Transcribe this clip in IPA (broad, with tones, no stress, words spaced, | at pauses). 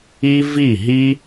i˦ vi˦˨ɦi˦